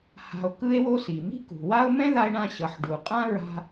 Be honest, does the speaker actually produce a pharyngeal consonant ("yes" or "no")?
yes